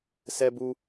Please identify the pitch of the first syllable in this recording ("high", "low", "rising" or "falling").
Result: high